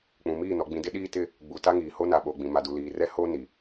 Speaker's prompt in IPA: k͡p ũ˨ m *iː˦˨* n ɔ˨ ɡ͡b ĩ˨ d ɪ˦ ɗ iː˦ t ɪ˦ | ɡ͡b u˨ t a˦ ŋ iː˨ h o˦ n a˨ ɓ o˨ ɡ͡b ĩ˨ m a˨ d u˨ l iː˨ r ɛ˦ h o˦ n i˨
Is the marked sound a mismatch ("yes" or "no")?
no